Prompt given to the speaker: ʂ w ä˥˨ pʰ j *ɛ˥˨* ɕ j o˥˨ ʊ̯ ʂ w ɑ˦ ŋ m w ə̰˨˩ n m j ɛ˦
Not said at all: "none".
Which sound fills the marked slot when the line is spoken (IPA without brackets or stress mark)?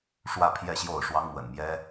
ɛ˥˨